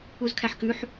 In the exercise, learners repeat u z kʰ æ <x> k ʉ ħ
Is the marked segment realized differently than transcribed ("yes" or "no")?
yes